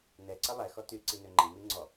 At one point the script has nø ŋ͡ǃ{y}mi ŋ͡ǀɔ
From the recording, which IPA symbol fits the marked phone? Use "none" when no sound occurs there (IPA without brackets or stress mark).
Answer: i